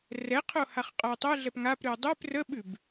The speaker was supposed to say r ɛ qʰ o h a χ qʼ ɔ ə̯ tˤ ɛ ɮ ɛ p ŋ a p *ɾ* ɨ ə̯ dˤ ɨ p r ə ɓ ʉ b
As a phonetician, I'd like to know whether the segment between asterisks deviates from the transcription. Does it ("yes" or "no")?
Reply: no